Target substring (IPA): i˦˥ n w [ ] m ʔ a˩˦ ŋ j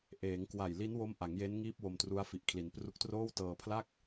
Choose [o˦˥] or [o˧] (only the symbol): o˦˥